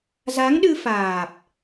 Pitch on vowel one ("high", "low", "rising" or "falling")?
rising